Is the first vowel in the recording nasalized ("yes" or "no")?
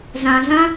yes